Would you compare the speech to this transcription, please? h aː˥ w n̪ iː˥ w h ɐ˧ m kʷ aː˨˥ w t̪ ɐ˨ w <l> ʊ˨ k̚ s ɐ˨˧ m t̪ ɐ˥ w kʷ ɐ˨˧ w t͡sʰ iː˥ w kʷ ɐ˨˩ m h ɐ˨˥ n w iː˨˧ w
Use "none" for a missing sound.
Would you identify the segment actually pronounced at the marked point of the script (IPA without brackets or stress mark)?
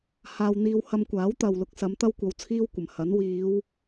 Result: l